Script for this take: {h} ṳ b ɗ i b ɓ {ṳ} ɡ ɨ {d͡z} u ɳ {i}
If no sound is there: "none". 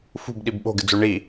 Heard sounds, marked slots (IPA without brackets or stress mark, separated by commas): f, o̤, d͡z, i